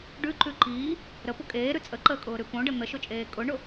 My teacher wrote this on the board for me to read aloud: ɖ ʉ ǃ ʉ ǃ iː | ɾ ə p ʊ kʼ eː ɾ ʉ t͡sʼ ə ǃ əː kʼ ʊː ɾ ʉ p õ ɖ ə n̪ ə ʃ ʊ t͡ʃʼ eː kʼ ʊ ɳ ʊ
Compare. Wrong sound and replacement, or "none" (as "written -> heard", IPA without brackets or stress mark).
none